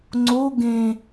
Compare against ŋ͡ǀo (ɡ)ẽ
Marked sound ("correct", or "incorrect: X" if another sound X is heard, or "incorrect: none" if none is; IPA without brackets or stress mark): correct